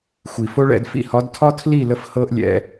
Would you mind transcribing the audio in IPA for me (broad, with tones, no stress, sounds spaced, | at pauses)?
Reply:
xʷ i˨ f o˦ ɭ ɛ̰˧ d f ḭ˧ h ɒ˨˦ d tʰ ɒ˦ tʰ l i˦˨ l ə˧ f h ɤ˦ ʔ lʲ ɛ̰˧